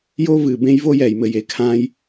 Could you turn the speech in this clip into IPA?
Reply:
jo˦vɨ˨bẽ˦j vo˦jɛ˨jmɘ˨j e˨kʰãː˦j

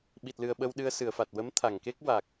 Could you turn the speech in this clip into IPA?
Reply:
ɓi˨˩t̚lɨ˨˩ə̯ ɓə˧wɗɨ˧ə̯sɨ˨˩˨ə̯fa˨˩t̚ wə˧˥mt̪ʰa˨˩˨ŋke˦˥k̚ wa˨˩k̚

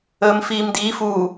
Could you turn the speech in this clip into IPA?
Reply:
əːmfiːmdiːf uː

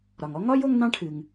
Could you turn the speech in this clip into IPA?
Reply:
ɾɒ˩ŋɔ˥ ŋɒ˥j o˥ŋnɑ̃˥ʈʰɨ˩ŋ

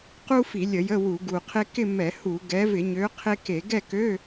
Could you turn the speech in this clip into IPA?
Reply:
qu˥fi˧˩˧ lʲə˧˩˧jə˧˥˧ wu˧˩˧ɡu˨˩qʰe˥ kɪ˥˧ mɛ˧˩˧hu˧˩˧ ɡɛ˨˦vɪ˧˩˧ɲø˨˦ qʰe˥ke˧˩˧ ɡɛ˥˧kø˧˥˧

